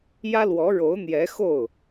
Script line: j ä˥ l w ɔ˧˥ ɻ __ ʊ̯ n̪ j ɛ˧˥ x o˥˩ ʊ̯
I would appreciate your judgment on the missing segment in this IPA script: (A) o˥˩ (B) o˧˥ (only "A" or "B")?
B